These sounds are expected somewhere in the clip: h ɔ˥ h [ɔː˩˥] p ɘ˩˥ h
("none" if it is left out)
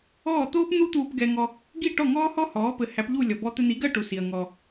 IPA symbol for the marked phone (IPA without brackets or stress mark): ɔː˩˥